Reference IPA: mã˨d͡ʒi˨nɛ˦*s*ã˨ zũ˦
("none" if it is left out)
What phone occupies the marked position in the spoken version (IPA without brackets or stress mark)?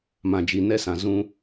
s